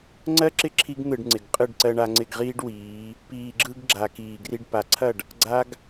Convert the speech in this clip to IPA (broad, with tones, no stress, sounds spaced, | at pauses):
ŋ͡ǀ ɜ˦ ǁ ɪ˦ ǁʰ i˦ ɡ n̪ ɯ˨ ɖ ŋ͡ǀ ɪ˨ ɡ qʼ ɯ˦˨ ɖ ǀ ɜ˧ ɳ a˧ ŋ͡ǀ ɪ˦˨ ɡ ʁ iː˦ ɖ w iː˨˦ | p iː˨ ɡ͡ǁ ɯ˧ ɡ ɡ͡ǁ a˨ k iː˨ ɡ r i˧ ɖ p a˨ ǀʰ ɐ˦˨ ɖ | ɡ͡ǀ a˦ ɡ